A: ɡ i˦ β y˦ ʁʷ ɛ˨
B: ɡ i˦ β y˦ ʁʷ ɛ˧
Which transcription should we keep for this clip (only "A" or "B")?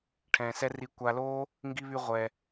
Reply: B